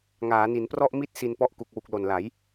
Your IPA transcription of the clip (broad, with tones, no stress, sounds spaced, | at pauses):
ŋ aː˩˦ n i˩˦ n p r ɔ˥˩ ʔ m i˥˩ t̚ s i˧ n p ɔ˥˩ ʔ k u˨˩ k̚ w u˨˩ k̚ l o˨˩ n l a˩˦ j